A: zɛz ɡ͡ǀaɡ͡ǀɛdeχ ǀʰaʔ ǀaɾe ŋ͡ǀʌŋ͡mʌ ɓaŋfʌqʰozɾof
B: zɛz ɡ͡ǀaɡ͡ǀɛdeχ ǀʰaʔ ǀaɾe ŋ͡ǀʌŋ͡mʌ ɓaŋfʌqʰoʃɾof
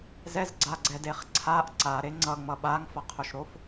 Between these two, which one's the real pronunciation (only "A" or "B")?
B